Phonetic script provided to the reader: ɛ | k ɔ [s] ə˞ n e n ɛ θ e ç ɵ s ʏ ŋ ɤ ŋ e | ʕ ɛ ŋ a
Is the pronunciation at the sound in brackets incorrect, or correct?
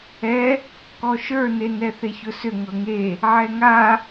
incorrect